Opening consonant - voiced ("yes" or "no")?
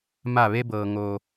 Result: yes